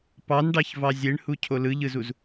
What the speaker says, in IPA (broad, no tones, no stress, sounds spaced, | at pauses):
p ɑ n ɖ ɑ ç v ɑ zʲ e ɳ h u cʰ o l ɯ ʎ ɯ z u z